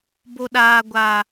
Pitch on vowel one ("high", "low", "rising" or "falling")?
high